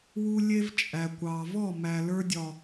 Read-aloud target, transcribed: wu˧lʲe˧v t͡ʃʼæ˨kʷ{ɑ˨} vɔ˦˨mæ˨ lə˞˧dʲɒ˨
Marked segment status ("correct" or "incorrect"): correct